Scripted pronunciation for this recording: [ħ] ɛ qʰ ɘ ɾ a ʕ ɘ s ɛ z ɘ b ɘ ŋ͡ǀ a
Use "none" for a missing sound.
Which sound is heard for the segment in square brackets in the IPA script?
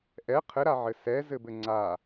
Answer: ʔ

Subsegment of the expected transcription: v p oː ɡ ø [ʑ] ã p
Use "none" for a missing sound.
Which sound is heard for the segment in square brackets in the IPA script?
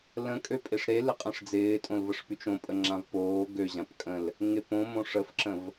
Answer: ʑ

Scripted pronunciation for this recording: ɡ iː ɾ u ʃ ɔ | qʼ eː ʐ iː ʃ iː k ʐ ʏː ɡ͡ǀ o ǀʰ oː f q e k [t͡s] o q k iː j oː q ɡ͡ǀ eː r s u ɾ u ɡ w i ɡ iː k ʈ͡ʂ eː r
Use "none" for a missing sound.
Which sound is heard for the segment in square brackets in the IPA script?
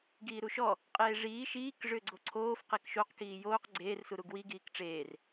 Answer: ʃ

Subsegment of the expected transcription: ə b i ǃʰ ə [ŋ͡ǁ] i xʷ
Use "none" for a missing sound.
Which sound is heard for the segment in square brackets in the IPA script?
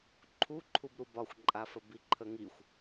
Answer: ŋ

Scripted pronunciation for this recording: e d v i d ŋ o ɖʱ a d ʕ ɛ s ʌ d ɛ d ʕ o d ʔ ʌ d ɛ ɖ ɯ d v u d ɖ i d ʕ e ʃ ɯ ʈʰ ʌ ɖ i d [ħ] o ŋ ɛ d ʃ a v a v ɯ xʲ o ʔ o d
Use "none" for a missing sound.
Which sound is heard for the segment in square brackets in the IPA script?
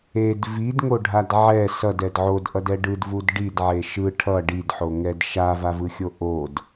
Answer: ħ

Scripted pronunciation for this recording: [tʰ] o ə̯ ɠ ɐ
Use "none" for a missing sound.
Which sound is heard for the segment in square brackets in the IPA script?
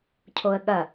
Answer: cʰ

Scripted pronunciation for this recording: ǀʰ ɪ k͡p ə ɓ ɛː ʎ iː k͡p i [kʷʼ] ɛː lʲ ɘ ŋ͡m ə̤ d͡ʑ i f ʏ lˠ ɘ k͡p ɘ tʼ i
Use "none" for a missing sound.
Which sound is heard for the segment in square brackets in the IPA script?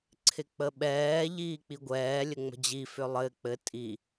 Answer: ɡʷ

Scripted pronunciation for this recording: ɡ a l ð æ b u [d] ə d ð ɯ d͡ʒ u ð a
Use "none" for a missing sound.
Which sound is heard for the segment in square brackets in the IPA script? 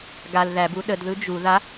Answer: ɗ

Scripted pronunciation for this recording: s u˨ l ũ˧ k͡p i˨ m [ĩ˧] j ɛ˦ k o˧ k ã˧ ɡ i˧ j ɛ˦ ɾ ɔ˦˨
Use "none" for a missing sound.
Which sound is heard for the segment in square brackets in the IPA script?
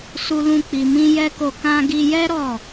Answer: ĩ˧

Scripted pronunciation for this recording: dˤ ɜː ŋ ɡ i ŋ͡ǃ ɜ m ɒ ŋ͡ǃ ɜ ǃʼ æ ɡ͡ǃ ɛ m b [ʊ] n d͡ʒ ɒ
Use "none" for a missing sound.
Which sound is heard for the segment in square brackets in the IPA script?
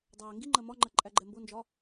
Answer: ʊ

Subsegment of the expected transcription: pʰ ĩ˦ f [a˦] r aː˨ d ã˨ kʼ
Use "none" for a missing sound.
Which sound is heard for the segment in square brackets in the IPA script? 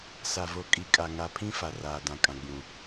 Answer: a˨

